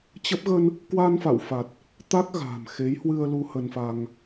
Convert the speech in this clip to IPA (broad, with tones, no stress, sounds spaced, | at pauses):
t͡ɕ ə˦˥ p̚ ɣ ə˧ n | k w aː˧ n f a̰˧˨ w f a˨˩ t̚ | t̪ a˦˥ k̚ ɣ a̤ː˨˩ m x e˨˦ j h w ɨ˧ ə̯ l u˧ h ə˧ n f a˧ ŋ